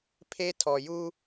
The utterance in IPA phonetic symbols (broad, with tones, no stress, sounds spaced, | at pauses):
pʰ e˦ tʰ ɔ˨ j u˦